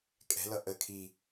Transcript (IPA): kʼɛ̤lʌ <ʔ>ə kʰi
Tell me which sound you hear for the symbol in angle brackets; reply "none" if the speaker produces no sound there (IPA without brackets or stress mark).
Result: ʔ